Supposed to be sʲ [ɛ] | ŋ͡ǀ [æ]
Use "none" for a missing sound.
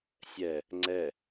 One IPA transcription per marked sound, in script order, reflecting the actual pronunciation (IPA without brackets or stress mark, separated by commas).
ɛ, ɛ